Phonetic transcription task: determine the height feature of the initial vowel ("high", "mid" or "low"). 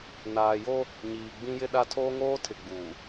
low